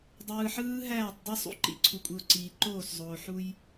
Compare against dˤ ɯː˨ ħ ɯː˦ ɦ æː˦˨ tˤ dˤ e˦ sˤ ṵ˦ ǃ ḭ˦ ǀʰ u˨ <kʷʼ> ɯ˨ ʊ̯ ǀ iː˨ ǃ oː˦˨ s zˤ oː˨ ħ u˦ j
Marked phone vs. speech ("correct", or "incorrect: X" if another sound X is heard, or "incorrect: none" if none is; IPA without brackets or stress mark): correct